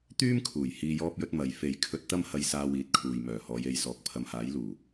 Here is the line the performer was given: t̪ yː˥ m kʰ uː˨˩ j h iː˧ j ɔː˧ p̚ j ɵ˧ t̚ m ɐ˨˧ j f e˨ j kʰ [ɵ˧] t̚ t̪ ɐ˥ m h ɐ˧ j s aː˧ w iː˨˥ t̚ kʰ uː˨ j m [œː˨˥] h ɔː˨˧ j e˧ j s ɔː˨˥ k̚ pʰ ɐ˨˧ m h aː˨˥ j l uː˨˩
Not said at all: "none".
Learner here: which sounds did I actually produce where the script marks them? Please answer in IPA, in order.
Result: ɵ˧, œː˨˩

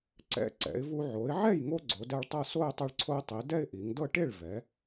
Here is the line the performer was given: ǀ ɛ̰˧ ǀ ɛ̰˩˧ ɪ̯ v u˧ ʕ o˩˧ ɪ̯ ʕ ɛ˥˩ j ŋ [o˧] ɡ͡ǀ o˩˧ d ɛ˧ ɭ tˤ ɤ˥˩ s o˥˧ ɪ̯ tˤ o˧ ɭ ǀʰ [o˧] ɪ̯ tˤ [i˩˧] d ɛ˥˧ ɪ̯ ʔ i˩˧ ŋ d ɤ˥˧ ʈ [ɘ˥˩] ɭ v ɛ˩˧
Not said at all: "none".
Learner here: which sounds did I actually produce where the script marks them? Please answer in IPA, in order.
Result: o˧, o˧, i˩˧, e˥˩

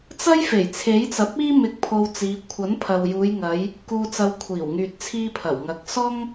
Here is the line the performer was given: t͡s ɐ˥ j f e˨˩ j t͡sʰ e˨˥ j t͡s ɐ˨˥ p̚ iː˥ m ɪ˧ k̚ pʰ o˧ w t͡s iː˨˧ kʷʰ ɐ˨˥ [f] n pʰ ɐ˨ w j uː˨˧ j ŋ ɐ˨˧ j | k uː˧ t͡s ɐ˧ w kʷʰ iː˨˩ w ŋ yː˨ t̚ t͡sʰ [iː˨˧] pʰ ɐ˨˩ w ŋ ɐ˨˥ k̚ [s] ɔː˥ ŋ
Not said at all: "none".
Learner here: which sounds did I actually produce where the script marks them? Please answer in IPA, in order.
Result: none, iː˧, s

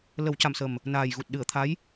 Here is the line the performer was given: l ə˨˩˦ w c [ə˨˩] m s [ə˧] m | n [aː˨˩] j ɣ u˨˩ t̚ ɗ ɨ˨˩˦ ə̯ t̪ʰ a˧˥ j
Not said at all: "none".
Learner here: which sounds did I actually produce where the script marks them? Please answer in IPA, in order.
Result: a˨˩, ə˨˩, aː˨˩

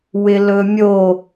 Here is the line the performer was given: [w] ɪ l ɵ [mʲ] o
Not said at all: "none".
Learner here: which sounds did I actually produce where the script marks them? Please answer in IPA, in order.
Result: w, mʲ

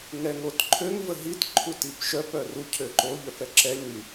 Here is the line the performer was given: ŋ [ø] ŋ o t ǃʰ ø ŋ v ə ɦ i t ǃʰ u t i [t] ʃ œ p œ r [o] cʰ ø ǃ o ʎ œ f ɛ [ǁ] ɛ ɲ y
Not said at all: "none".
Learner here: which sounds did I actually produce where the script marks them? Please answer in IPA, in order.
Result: ɛ, p, u, ǁ

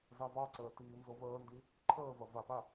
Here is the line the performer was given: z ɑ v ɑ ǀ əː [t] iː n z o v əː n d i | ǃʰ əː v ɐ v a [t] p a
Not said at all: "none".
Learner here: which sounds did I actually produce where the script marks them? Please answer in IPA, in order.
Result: t, none

